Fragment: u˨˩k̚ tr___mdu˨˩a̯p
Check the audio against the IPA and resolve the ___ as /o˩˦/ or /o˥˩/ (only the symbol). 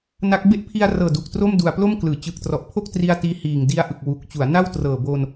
o˥˩